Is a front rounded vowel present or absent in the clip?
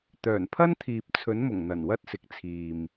present